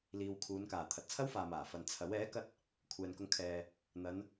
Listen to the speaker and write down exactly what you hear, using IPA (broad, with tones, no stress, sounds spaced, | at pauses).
l iː˨ w kʰ uː˨˧ n k aː˨˩ t̪ʰ ɐ˨ t̚ t͡sʰ ɐ˥ w f aː˨ m aː˨˩ f ɐ˨ n t͡sʰ ɐ˨˥ w ɛː˨˥ k ɐ˧ t̚ | kʷʰ ɛː˨ n k ʊ˧ ŋ kʰ ɛː˨ | n̪ ɐ˨˧ n